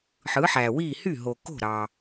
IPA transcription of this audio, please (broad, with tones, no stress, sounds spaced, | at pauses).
ħ ɯ˩˥ ħ æ˩ w i˥˩ h y˥˩ ɦ o˩ k o̤˥˩ ɾ ɑ˩